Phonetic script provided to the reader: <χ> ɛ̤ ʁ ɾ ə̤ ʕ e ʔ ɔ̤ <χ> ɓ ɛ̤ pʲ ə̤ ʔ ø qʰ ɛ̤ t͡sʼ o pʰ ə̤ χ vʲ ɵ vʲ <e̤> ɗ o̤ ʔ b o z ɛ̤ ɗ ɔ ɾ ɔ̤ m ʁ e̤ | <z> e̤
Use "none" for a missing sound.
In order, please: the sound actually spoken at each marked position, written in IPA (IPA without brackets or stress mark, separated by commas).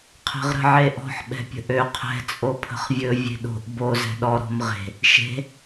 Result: qʰ, ħ, e̤, ʃ